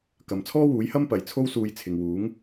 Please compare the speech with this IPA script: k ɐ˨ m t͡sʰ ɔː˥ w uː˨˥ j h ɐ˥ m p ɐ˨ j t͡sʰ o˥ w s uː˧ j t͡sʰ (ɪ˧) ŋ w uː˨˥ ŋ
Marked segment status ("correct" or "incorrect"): incorrect